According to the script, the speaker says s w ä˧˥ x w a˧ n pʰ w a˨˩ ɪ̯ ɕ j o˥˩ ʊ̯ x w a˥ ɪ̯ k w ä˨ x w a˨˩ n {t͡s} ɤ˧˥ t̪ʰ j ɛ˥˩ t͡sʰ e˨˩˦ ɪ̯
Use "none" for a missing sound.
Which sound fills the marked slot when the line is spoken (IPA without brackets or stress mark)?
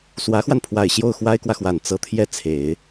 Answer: t͡s